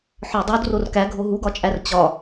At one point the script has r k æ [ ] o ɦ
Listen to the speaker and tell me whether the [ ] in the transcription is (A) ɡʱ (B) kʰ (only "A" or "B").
A